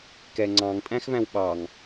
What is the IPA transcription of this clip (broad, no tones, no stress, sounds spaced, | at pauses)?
k ɛ ŋ͡ǀ ɑ̃ ŋ tʼ æ̃ x v æ̃ w ɓ ɑ ŋ